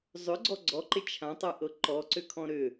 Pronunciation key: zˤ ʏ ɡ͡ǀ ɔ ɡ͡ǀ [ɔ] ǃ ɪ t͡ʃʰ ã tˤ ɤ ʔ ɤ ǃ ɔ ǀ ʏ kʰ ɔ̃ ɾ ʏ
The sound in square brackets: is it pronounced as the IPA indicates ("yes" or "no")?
yes